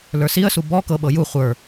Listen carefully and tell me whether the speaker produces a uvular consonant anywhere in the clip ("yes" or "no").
yes